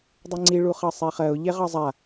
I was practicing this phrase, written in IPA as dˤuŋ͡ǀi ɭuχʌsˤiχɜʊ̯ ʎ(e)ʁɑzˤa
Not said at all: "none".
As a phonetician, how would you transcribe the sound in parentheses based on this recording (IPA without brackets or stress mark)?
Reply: e